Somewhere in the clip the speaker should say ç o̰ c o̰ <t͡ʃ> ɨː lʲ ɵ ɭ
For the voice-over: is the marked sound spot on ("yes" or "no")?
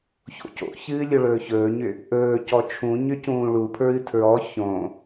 no